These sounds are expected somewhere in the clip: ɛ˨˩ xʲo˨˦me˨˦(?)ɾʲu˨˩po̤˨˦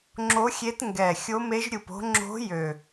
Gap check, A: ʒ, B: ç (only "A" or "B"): A